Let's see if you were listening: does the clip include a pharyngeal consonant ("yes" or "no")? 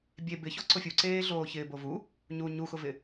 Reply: no